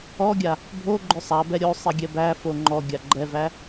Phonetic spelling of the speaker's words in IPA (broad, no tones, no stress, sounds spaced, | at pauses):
ɔ ɡʲ a | bʱ o ɡ͡ǃ ʏ sˤ a b ɛ ɾʲ o sˤ i ɡʲ ɛ b æ f o ŋ͡ǃ ɔ ɡʲ a ɡ͡ǃ ɛ v æ